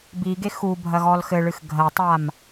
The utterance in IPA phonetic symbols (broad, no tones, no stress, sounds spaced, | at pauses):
b i ɡ e x u bʱ ɐ ɣ ɔ l x ɘ ɭ ɨ x ɡʱ ɐ tˤ a m